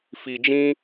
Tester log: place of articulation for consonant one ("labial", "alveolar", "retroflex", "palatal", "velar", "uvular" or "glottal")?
labial